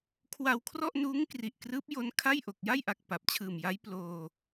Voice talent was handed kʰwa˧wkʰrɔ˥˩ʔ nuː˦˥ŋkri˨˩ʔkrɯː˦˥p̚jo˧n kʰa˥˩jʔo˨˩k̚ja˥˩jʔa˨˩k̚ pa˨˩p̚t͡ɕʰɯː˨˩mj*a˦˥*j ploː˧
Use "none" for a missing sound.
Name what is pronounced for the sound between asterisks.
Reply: a˦˥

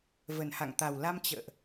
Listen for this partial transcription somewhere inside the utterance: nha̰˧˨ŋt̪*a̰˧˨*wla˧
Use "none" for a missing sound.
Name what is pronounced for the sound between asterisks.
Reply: a˨˩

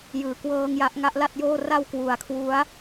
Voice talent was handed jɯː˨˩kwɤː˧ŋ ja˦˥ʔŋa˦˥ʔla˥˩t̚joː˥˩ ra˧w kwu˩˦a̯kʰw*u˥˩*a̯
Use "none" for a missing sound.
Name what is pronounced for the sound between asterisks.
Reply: u˦˥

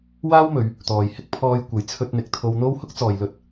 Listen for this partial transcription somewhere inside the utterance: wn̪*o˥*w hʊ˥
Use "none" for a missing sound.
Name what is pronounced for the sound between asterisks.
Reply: o˥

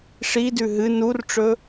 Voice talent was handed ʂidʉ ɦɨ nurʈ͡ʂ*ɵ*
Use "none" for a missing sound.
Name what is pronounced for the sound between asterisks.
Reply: ɵ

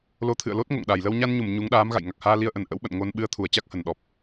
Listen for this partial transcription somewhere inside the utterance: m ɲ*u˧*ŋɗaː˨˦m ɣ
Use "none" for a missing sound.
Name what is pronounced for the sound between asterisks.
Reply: u˨˦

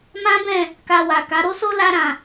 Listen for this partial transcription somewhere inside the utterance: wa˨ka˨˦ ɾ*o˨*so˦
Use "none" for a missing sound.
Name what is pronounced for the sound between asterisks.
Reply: o˦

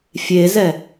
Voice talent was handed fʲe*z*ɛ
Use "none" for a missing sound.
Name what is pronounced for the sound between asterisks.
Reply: z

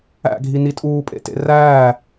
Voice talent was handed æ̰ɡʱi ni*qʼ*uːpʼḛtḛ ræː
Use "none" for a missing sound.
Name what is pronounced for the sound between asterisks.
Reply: tʼ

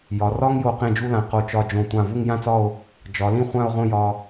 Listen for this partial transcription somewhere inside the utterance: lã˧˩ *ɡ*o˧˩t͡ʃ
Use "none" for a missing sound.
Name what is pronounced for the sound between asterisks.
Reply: q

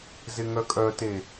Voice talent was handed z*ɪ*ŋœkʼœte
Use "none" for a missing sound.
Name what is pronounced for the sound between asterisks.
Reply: ɪ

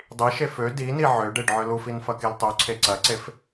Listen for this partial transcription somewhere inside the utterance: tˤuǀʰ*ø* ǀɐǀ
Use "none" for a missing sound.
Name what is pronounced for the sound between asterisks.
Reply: e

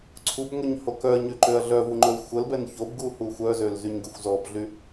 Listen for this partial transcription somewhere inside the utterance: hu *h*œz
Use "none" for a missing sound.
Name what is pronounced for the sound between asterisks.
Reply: xʷ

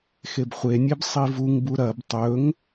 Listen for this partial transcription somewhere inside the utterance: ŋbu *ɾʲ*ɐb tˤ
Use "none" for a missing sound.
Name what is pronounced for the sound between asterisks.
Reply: ɾ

